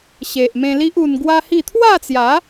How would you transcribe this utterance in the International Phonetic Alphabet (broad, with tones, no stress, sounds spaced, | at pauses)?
ɕ e˨ ʔ m ẽ˧ l i˦ ʔ u˧ n ɡ w a˦ h i˥˧ t̪ʰ w a˥˧ t͡s j a˨˦